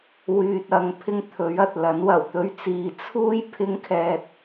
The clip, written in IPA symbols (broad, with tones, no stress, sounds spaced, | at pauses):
w yː˨ t̚ ɐ˧ ŋ pʰ ɪ˥ ŋ t̪ʰ ɵ˨˥ ɥ ɐ˨ t̚ l ɐ˨˥ n w ɐ˨˩ w t̪ ɵ˧ ɥ t͡s iː˨ t͡sʰ uː˥ j pʰ ɪ˧ ŋ kʰ ɛː˨ t̚